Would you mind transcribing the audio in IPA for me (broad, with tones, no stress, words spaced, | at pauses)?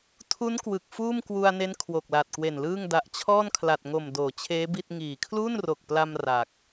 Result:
tʰu˦˥n kwɯ˨˩k̚fuː˥˩mkwu˧a̯ne˦˥n kʰwo˨˩k̚la˨˩t̚kwe˨˩nlɯː˥˩ŋ da˨˩ʔt͡ɕʰɔː˥˩nkʰla˨˩t̚ŋo˨˩m doː˩˦t͡ɕʰeː˦˥bi˥˩t̚ ŋiː˨˩ kʰluː˥˩nro˨˩k̚pla˧m ra˨˩k̚